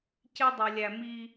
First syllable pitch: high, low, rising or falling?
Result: high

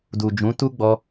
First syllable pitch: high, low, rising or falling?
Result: low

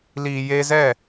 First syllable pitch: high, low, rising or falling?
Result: low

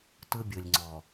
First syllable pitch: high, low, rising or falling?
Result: high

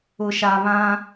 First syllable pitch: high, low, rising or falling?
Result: low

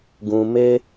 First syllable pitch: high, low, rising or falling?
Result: low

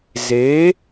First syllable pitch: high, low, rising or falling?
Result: rising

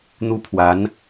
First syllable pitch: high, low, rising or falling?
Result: high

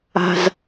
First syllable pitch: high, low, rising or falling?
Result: low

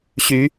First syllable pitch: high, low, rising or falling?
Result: rising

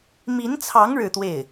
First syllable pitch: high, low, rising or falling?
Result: rising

